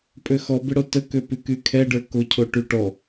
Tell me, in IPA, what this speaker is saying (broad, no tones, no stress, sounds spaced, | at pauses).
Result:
pʼ ø x ɔ b ɪ ɽ o t ə k ø p y k y kʰ ɛ ɖ ə˞ k o cʰ o ʈ y ʈ ɔ